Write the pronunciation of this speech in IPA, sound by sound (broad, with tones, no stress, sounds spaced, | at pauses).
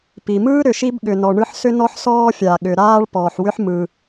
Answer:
p i˩ m ɯː˥ ɾ ʏ˩ ʃ i˥ b ɠ ʏ˩ n ɔ˩ ɳ ɯ˥ ħ s ʏ˥ n ɔ˥ ħ s ɔː˥ fʲ a˩ ɠ ʏ˩ ɾ aː˥ ɭ p ɔː˩ ħ w ʏ˥ ħ m ɯ˩